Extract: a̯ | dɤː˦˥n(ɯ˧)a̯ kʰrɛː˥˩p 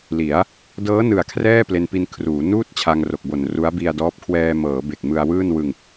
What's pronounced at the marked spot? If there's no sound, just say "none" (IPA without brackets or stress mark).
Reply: ɯ˨˩